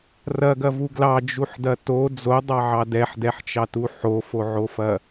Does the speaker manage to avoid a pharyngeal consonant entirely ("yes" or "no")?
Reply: no